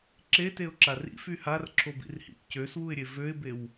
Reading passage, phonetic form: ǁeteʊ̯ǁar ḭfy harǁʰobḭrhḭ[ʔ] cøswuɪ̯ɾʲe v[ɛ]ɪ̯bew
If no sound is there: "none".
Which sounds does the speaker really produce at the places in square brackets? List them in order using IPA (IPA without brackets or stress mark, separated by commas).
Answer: ʔ, ø